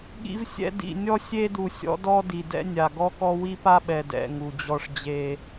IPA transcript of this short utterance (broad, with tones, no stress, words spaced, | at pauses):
ɠḭ˦vsʲɛ̰˦ dḭ˨ nʲɔ˦sʲe˦du˨ sʲɔ̰˦dɔ˦ di˨dɛ̰˦ nʲa˨ ɡɔ˦kɔ˦ wi˦pa˦ɓɛ˨ dɛ̰˨ ŋu˨d͡ʑɔ˦ʂd͡ʑe˦